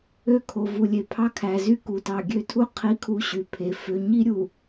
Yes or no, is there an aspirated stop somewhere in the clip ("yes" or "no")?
yes